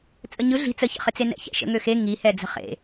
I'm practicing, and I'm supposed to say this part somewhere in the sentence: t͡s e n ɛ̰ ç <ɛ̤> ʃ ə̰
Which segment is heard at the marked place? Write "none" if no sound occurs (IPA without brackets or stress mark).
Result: ɛ̰